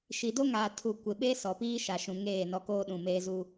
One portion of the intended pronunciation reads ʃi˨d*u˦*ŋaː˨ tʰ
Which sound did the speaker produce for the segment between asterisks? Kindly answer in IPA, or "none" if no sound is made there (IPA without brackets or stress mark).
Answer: o˦